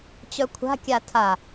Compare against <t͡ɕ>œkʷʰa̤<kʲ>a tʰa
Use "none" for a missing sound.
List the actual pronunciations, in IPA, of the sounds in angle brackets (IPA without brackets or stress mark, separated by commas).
t͡ɕ, kʲ